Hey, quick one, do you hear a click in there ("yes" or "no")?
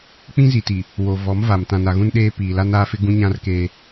no